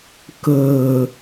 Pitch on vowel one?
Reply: low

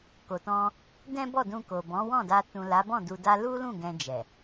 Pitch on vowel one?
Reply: low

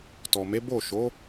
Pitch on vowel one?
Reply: low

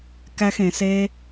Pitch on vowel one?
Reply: high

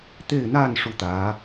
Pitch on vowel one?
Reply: falling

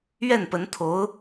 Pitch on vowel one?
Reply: falling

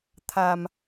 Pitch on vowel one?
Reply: low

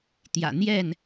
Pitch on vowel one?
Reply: low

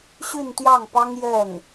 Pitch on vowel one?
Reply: falling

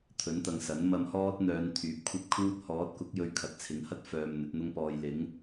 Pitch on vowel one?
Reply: rising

